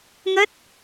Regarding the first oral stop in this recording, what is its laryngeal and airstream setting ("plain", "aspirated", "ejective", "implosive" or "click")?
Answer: plain